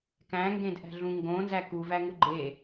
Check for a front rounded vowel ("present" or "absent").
absent